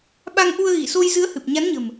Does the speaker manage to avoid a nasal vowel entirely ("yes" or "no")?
yes